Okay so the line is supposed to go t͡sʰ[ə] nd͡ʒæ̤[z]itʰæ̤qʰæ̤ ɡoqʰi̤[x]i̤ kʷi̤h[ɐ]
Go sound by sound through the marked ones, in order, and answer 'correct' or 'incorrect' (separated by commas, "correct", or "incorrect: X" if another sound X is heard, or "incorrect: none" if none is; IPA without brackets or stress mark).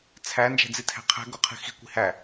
incorrect: æ, incorrect: d͡z, correct, incorrect: æ